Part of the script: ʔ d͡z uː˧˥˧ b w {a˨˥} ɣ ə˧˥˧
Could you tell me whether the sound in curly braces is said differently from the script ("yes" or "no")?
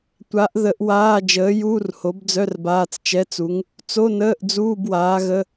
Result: yes